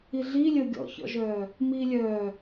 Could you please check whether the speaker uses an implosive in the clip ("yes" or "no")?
no